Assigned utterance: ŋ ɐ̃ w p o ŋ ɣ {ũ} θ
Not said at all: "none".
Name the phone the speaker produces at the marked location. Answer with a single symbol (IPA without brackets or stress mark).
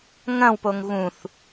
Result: ũ